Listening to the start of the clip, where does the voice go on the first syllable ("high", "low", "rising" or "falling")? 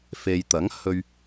low